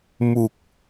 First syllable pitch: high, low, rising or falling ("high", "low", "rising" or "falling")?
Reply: low